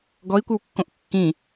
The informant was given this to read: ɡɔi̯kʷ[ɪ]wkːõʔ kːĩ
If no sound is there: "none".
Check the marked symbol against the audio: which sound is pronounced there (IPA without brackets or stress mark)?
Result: ɪ